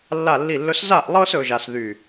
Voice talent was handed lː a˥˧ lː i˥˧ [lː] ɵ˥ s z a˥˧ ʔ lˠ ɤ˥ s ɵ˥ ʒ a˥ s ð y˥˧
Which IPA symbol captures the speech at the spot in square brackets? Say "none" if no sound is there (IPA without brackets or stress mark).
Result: lː